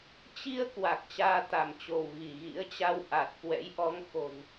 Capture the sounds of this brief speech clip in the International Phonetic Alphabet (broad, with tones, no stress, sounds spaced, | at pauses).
t͡ɕ i˧ ə̯ k w a˨˩ k̚ t͡ɕ aː˧ t̪ a˧˩ m t͡ɕ o˧˩ w ɣ i˧˩ ɣ ḭ˧˥ ə̯ t͡ɕ a˧ w ʔ a˨˩ t̚ k w ɛ̰˧˥ j ʔ ɔ˨˦ ŋ x o̤˨˩ n